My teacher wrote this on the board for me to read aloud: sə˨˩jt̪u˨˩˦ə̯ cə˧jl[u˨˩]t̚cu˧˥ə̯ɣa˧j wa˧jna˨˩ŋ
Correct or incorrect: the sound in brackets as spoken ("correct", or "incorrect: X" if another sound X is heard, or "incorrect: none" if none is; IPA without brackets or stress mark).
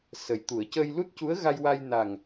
incorrect: u˦˥